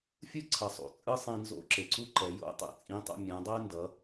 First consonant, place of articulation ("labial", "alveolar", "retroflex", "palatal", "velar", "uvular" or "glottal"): labial